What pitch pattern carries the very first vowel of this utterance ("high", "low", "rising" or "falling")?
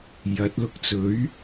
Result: rising